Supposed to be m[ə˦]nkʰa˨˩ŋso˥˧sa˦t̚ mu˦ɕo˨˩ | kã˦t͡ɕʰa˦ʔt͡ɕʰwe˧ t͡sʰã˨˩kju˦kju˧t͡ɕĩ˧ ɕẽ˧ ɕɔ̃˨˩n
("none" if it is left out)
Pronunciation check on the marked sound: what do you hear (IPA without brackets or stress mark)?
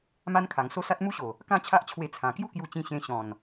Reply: a˦